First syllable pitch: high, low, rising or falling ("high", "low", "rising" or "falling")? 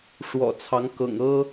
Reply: low